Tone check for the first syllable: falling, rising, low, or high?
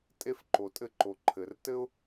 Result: high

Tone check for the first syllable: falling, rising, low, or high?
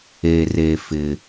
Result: low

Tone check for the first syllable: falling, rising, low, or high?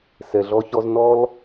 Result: low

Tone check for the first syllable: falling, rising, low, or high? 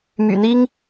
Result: low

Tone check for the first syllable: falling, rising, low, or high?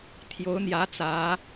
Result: rising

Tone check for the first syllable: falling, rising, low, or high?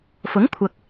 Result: rising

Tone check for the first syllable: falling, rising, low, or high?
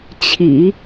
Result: low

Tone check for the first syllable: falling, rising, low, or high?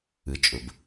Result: low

